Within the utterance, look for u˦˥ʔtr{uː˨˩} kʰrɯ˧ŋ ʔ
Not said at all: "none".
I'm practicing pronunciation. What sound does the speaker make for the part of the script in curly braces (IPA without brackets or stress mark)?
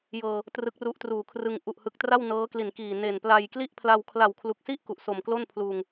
uː˨˩